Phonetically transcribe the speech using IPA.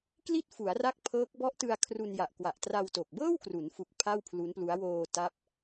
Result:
k l i˥˩ t̚ f u˩˦ a̯ r a˦˥ k̚ pʰ ɤː˦˥ k̚ b ɔ˦˥ ʔ t ɯ˧ a̯ kʰ r u˧ n j a˨˩ ʔ k w a˨˩ ʔ t r a˧ w t o˨˩ k̚ b ɤː˥˩ w k r u˩˦ n f u˨˩ k̚ pʰ a˥˩ w pʰ l u˦˥ n p l u˦˥ a̯ w oː˧ t a˦˥ p̚

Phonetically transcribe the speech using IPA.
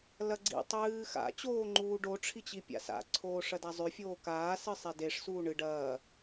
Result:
l ɐ ɡ͡ǀ ḭ tˤ ɨː x a̰ t͡ɕ oː ŋ͡ǃ uː ɖ o ʈ͡ʂʰ i t͡ɕ i pʲ a̰ s a̰ ǀʰ oː ʂ ɐ d a zˤ ʉ fʲ oː k aː s ɨ sˤ e d e ʂ s uː ɳ ɨ ɖ ɐː

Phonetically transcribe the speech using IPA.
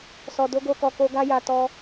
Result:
s ɔ˨ d o˨˦ ɡ o˧ k ɔ˨ k o˧ ɡ a˦ j a˧ t ɔ˧

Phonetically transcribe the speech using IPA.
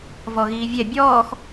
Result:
v ɔ ɣ iː vʲ ɛ bʲ ɔː x

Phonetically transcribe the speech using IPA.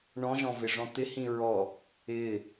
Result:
ɳ ɔ̃ ʒ ɔ̃ v ɪ ʐ ɔ̃ t̪ ɪ h ĩ ɹ ɔ | ɪ

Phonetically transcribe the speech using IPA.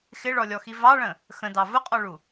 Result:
x ɪ ɭ ɔ lʲ ɔ x i v ɑ ɭ ə̃ | x ə̃ d ɑ v ʊ qʼ ɔ ɭ u

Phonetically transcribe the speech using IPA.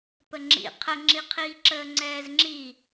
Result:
p ə ŋ͡ǁ ḭ qʰ ə ŋ͡ǁ i qʰ iː ǁ əː ŋ͡ǀ ɛː z ŋ͡ǁ i

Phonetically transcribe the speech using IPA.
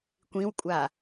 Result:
kʷ ĩ w kʷʼ a

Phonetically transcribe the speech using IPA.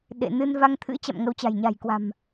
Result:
ɗ ḛ˧˨ n ɨ˧ n v a˧ ŋ t̪ʰ ɨ̰˧˥ t͡ɕ a̰˧˨ m ŋ ə˨˦ w t͡ɕ a̤˨˩ j ɲ a̤˨˩ j k w a̤˨˩ m

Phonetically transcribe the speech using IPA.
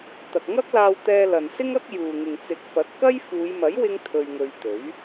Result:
t̪ ɐ˨ k̚ ŋ ɐ˥ k̚ l aː˧ w t̪ ɛː˧ l ɐ˨ n s ɪ˥ ŋ ɐ˥ k̚ j uː˨ ŋ ɪ˨ ŋ t͡s ɪ˨˥ k̚ f ɐ˨˥ t̚ k ɐ˥ j f uː˨˧ j m ɐ˨˥ j w ɪ˥ ŋ t̪ʰ ɵ˧ ɥ ŋ ɵ˧ ɥ t̪ ɵ˨˥ ɥ

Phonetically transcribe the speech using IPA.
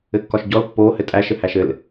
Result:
ɘ kː ɒ ʃ ɟ ɔ l pː o h ɘ tʼ æ ʃ ɘ h æ ʃ ɘ l

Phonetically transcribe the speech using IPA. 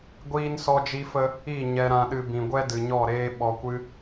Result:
ɡʷ iː˦ n s ɔ˦ d͡ʒ i˦ f ə˦ | i˦˨ ɲ ɛ˧ ɾ ã˧ ɗ ɨ˧ b ĩ˨ ɡʷ ɛ˦ d ɨ˨ ɲ ɔ˦˨ ɾ eː˦ ɓ ɔ˧ kʷ ɨ˦

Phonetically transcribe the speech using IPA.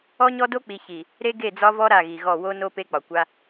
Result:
ɔ˦ ɲ ɔ˦ d o˦ k͡p i˨ ç i˨ | ɾ e˦ ɡ e˦˨ d͡z ɒ˦ v ɔ˦ ɾ a˦˨ ɣ i˨ ɣ ɔ˦˨ w o˦ n o˦ p e˦ k͡p ɒ˨ kʷ a˦

